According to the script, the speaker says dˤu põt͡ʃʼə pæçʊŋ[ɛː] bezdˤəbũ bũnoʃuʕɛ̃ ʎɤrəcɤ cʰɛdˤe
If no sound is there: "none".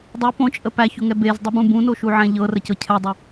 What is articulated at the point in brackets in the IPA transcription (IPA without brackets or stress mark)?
ɛ